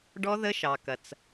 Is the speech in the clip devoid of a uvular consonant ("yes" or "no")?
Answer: yes